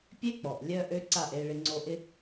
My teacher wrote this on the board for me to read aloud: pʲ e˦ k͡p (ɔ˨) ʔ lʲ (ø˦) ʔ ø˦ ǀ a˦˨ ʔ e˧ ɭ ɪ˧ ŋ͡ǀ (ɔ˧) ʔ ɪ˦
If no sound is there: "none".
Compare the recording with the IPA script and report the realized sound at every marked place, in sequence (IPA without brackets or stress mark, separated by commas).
ɔ˨, œ˦, o˧